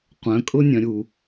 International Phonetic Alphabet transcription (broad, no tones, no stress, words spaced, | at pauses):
qʷœ̃kʼʊnʲœ̃ɾʲu